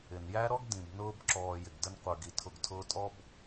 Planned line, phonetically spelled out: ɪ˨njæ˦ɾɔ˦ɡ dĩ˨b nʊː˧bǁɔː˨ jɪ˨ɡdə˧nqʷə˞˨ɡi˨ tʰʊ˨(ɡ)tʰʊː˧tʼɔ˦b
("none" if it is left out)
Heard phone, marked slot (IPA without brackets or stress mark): ɡ